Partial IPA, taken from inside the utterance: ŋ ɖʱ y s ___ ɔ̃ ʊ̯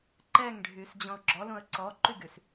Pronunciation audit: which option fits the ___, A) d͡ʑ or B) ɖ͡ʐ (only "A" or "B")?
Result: A